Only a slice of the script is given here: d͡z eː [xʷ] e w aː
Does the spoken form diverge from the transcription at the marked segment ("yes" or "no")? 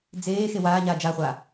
yes